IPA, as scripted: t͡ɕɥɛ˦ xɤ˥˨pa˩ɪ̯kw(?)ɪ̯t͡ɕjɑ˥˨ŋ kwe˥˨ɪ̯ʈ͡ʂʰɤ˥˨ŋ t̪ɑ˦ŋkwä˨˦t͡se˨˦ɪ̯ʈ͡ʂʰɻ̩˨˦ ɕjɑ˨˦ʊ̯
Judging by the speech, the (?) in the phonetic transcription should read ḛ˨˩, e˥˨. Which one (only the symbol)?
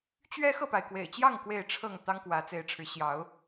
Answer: ḛ˨˩